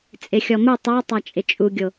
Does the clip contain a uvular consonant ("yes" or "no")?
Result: no